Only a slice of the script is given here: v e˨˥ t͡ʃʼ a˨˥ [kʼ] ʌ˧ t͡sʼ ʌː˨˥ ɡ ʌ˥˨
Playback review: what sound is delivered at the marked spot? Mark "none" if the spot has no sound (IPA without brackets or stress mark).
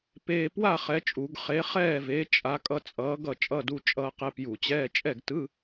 kʼ